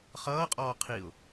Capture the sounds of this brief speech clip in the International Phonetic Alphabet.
χ ʌː qʼ ɔː qʰ i ʊ̯

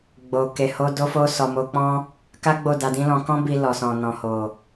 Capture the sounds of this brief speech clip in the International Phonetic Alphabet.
ɡ͡b o˨ k e˨ h o˧ d o˧ f o˧ s ɔ˨ m o˧ k͡p ɔ̃˦ | k a˦ ɡ͡b o˦˨ d a˧ d ĩ˦ l ɔ̃˧ k ɔ̃˦ b i˧ l ɔ˨ s ɔ̃˨ n ɔ̃˨ h o˨

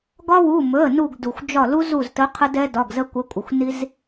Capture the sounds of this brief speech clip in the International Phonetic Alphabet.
ɡ ɒ˦ w u˩˧˩ m ɵ˩˧˩ ə̯ n u˧˩ ɡ d u˩ xʷ d͡ʒ ɒ˧˩ l u˦ z u˧˩ z t ə˨˦ qʰ ə˦ d ɛ˦ d ɒ˩˧˩ ɡ z ə˦ kʷ ə˨˦ kʷʼ ə˩ xʷ n i˦ z

